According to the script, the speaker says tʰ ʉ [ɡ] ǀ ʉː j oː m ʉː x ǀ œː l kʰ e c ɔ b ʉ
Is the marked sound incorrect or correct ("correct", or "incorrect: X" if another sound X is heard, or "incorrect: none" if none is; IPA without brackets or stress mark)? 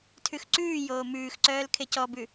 incorrect: x